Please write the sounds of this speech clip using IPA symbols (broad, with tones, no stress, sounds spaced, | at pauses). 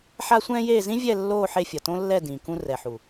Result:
ħ a˦ sʷ ɛ̃ː˦ j eː˦˨ z ĩ˦ vʲ ɛ˦˨ lː oː˦˨ ħ e˧ fʲ ʌ˨ t õ˦ lː ɛ˦˨ d ĩ˨ k ũ˧ r ɛ˨ ħ u˨